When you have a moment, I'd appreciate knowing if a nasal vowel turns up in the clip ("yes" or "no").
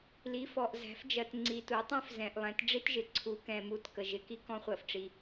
yes